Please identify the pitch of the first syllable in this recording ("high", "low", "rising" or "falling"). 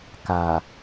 low